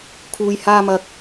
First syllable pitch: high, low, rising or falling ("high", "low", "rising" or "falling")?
low